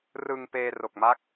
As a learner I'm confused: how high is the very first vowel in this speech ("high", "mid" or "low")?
high